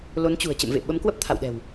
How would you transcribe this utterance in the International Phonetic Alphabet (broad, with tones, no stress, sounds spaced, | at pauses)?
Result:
l o˨˦ n t͡ɕ ṳ˨˩ ə̯ t͡ɕ ə̰˧˨ m v ḛ˧˨ ɓ ə˨˦ m k w ə˦˥ p̚ t̪ʰ a̰˧˨ w ɗ ɛ̤˨˩ w